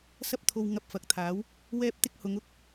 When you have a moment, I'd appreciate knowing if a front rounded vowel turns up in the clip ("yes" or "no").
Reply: no